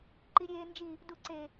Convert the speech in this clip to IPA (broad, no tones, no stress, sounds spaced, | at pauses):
ǃ i ɾʲ eː n d͡ʒ i | d u ǀ e